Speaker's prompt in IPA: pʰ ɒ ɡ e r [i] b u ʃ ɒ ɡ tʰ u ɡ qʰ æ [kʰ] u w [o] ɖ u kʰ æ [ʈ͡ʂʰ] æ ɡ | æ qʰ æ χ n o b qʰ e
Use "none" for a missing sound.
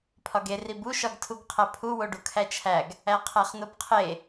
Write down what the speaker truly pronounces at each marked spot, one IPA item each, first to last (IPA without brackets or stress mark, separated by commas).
i, pʰ, o, t͡ʃʰ